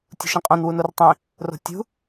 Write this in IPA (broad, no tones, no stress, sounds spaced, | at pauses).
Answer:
tʲ ṳ ʃ ĩ qʼ õ n w u n o r tˤ ĩ | r o̤ tʲ ṳ